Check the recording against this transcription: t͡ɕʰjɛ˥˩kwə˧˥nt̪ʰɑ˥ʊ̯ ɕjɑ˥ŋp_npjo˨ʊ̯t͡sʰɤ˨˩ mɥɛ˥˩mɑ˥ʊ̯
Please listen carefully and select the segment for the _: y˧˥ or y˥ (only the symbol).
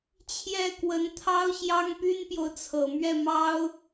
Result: y˥